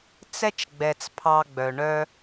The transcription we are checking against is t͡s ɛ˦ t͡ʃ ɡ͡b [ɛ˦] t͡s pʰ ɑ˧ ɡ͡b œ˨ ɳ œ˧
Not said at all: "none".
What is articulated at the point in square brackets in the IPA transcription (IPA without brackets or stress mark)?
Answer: ɛ˨